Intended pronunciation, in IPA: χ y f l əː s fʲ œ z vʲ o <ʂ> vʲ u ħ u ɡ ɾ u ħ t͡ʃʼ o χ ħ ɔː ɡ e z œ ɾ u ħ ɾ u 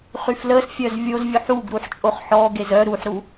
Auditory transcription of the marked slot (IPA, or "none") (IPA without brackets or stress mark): z